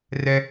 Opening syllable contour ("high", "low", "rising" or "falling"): high